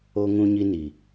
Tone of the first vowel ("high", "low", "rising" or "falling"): high